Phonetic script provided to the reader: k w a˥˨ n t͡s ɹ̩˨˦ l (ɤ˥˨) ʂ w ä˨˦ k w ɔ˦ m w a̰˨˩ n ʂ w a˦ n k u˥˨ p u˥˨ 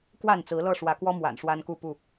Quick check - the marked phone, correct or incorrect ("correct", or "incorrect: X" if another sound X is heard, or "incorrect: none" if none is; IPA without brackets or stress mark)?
correct